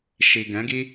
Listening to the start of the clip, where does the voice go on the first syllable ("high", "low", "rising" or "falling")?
low